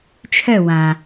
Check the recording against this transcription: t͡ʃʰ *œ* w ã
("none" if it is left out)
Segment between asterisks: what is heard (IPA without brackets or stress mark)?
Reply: œ